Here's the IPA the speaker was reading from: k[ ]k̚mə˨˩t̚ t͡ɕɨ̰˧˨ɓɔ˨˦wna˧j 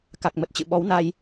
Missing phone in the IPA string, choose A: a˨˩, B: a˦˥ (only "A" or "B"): A